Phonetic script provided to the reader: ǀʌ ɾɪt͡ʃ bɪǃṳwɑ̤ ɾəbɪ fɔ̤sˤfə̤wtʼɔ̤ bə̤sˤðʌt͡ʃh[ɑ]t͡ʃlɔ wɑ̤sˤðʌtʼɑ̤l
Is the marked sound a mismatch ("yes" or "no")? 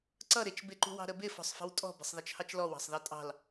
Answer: no